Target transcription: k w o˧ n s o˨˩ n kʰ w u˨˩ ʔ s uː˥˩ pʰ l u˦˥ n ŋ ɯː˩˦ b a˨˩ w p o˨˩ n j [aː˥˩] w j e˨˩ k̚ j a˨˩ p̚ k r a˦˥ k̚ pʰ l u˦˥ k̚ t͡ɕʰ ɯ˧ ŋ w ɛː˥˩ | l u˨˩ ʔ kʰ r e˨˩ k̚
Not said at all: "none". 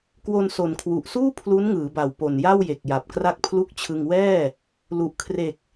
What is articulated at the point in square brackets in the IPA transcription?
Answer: a˥˩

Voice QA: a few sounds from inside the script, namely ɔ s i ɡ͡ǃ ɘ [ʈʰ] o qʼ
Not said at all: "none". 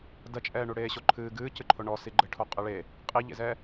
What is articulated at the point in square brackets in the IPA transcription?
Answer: ʈʰ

